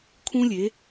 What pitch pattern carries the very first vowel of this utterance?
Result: high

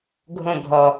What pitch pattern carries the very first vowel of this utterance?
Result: falling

